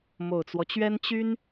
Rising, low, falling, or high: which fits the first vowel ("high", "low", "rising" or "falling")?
low